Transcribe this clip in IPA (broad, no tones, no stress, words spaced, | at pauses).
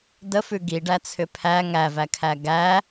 dəfʉ ɡiɖæt͡sʰʏ pʰæ ŋævækʰæ ɡæ